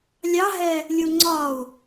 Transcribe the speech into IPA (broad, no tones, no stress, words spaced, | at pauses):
lʲɑɦɛ | lʲuŋ͡ǀɒu̯